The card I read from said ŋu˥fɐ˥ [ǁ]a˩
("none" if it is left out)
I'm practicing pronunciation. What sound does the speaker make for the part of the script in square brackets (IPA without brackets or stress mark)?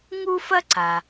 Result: ǀ